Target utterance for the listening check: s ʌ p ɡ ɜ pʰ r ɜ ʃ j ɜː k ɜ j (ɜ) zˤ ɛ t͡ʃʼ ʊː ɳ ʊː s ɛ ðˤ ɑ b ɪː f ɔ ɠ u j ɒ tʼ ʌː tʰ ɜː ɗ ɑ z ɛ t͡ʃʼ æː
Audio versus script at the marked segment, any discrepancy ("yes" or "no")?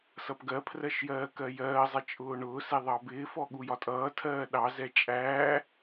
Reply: yes